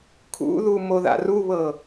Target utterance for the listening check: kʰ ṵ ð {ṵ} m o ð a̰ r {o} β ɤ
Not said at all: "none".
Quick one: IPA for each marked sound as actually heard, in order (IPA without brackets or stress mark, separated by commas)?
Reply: u, u